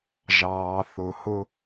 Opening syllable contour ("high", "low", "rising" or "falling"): low